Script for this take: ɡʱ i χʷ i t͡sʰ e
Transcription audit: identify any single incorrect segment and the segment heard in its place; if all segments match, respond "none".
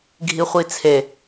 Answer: none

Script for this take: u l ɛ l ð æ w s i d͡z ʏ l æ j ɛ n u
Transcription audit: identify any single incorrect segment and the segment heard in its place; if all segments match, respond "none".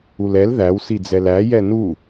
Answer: ʏ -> ɛ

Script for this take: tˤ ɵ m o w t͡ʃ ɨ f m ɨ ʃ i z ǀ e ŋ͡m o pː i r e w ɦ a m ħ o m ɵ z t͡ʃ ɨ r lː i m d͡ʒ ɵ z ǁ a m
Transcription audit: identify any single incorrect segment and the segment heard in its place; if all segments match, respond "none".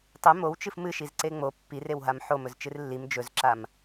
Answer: none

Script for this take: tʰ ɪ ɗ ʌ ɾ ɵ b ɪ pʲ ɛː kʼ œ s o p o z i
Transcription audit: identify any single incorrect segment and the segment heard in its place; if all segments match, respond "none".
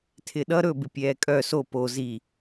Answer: none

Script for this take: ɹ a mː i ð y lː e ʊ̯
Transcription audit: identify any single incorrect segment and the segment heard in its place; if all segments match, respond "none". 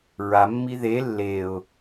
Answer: y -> e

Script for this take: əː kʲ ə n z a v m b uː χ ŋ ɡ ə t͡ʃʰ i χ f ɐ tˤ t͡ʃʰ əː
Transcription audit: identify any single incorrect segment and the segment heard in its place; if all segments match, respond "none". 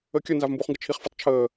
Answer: none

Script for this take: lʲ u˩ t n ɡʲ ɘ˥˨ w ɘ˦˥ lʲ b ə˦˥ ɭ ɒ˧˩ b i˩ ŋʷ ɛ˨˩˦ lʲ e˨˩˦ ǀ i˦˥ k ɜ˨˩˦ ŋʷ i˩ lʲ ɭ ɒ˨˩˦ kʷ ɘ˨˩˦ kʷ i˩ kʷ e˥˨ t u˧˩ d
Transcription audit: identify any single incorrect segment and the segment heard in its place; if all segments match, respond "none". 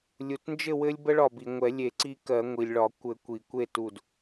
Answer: ɡʲ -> d͡ʒ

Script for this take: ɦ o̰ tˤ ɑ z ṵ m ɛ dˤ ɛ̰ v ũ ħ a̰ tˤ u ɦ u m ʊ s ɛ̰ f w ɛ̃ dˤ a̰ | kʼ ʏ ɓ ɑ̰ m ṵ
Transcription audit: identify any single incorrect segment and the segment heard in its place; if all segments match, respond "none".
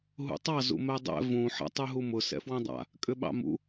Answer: o̰ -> ṵ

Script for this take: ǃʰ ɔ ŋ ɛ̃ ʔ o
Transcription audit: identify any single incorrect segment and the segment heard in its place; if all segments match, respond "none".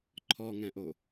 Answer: none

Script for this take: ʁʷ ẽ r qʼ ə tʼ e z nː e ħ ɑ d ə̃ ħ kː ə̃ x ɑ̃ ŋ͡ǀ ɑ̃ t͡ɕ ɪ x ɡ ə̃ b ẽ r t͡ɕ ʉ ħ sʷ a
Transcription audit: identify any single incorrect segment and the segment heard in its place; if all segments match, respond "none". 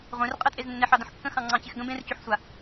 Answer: none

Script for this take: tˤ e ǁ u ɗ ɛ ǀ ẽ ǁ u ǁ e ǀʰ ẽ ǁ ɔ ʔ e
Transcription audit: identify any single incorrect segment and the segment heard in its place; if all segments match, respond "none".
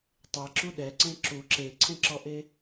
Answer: none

